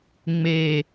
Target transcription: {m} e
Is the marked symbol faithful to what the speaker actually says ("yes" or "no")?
no